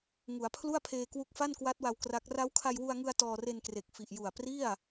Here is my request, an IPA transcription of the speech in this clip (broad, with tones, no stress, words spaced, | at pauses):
ŋu˩˦a̯pʰlu˥˩a̯pʰeː˧ kwu˦˥k̚fa˥˩nkwa˦˥t̚wa˧w kra˦˥k̚ ra˦˥wkʰa˧jwu˧a̯ŋɯ˧a̯ tɔː˧re˧nkre˨˩k̚ fi˨˩ʔju˨˩a̯ pri˥˩a̯